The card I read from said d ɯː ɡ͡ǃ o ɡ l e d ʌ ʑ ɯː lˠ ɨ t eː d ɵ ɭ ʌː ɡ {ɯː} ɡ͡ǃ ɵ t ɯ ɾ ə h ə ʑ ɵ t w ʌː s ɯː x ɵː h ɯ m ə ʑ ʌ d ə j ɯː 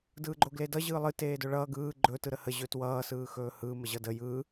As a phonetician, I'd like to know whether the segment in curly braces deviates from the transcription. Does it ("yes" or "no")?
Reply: no